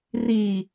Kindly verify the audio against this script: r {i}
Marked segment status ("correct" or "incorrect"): correct